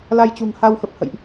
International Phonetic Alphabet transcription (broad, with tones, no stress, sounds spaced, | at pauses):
l a˧ j t͡ɕ ṳ˨˩ ŋ h a˧ w x ə˨˩ p̚ h ə̰˧˨ j ʔ